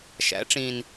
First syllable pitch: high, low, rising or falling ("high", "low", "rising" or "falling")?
rising